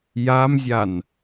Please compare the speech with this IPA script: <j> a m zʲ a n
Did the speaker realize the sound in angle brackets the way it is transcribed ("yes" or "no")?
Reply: yes